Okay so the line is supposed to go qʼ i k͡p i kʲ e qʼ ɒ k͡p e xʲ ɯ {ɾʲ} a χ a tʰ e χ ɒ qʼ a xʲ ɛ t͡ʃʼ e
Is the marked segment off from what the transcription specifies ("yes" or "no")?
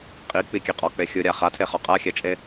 no